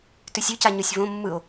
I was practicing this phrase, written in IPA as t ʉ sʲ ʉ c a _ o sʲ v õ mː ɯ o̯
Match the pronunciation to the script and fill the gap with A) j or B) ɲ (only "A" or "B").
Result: B